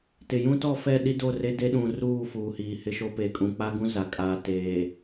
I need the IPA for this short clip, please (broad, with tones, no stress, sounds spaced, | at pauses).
t ɪ˨ j ũ˦ t ɔ˦˨ f ɛ˦˨ ɗ i˦ d o˦˨ r e˦ d e˦ ɗ ũ˨ r uː˦˨ f uː˨ h iː˨ h ɪ˦ ʃ o˦ p e˨ kʼ ũ˨ k͡p a˦ ɡ ũ˦ z a˨ kʼ aː˨ t eː˨